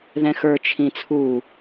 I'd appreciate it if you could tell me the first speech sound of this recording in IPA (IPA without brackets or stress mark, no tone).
ð